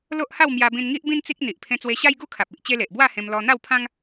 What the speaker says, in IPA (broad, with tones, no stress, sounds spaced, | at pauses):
l o˦ ʔ h a˥˧ w m j a˧ b ĩ˧ n ŋ i˦ ʔ b ĩ˦ n t͡s i˦ k̚ n̪ i˨ ʔ pʰ ẽ˧ t͡s w e˧ ɕ a˦ j ɡ u˥˧ kʰ a˨ p̚ i˨ ʔ t͡ɕ e˦ l e˨ ʔ b w a˥˧ h ẽ˧ m l ɔ˧ n̪ a˥˧ w pʰ ã˦ ŋ